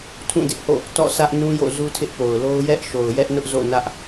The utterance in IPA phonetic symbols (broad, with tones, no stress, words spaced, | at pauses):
tʰũ˦˨dɪ˦ʔho̰˦˨ | tɔ̰˦˨sä˦ʔnũ˦jo̰˦˨ zu˦tʰɪ˦ʔpo˨ʊ̯lo˦ʊ̯ jɛ˦ʔ ʃo˨ʊ̯jɛ˦ʔnʊ˦ʔ zo̰˦˨nä˦ʔ